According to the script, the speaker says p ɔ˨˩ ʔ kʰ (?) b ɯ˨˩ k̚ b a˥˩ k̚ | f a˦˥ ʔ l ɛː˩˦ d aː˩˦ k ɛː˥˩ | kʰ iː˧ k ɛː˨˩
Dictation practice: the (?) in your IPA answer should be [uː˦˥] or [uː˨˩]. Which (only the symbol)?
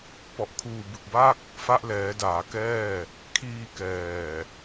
uː˨˩